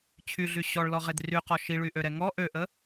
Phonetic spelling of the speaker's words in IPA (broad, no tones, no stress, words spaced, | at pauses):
t͡ɕʰyɮy ɕɔɭlɔʁed ryqɔ ʃiɭyʔøɾɛ ŋɔ ʔøʔə